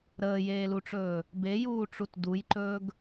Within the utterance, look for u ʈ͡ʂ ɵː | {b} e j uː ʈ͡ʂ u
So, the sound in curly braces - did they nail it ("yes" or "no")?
yes